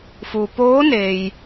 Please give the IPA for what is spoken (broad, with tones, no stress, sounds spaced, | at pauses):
f u˩ p oː˧˥ n eː˩ j